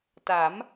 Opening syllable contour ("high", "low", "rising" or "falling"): rising